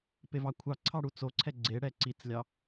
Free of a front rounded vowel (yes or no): yes